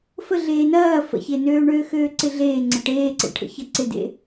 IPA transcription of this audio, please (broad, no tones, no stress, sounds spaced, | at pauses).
f ə ɮ eː n ɐː f ə̰ ç e n øː ɳ øː x øː ǀ ɪ ɮ eː ŋ͡ǀ ə ʈ eː ǀ ḛ ʈʰ ə̰ ç ɐ ǀ ɪ d ḛ